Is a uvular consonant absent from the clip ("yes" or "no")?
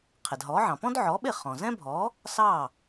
no